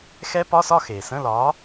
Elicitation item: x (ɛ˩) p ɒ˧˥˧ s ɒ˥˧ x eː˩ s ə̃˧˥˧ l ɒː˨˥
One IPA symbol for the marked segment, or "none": ɛ˦˥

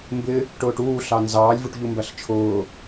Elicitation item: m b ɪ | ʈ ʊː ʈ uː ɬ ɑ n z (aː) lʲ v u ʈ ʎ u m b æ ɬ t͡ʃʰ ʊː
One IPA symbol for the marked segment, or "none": ɑː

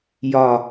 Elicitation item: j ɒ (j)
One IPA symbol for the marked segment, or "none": none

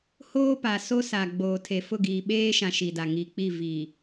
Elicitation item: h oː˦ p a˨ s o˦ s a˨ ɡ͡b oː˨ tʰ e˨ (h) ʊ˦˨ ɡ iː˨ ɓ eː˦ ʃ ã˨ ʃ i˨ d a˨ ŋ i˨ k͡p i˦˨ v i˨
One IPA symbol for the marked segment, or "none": f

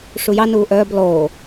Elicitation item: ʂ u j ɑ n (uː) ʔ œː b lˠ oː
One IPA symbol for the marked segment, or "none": uː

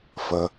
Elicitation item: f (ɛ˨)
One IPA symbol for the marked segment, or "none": ə˨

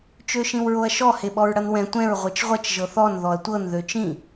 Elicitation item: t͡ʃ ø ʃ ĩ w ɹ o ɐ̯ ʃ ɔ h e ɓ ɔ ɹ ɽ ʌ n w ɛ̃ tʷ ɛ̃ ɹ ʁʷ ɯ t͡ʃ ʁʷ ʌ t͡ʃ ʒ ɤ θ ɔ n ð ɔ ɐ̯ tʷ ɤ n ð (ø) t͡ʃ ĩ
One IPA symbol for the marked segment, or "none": ø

